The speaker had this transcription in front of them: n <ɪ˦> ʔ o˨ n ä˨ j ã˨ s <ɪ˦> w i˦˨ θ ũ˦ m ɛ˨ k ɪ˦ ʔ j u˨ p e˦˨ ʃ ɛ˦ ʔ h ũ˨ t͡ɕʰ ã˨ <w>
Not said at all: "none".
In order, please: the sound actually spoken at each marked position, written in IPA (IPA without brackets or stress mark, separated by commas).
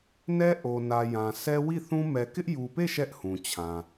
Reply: ɛ˦, ɛ˦, none